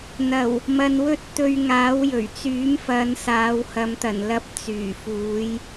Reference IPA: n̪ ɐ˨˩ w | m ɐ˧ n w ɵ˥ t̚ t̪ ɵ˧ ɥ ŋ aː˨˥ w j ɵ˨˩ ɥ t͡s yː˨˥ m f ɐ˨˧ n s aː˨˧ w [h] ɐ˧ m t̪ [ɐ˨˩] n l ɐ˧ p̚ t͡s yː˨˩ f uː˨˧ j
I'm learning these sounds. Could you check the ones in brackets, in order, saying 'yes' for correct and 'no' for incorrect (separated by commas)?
yes, yes